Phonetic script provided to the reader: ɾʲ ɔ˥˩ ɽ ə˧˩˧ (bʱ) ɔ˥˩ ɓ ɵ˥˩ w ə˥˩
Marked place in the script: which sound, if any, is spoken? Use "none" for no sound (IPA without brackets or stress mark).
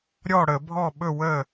bʱ